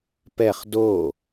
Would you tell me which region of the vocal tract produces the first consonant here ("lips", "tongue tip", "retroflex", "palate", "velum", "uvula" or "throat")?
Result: lips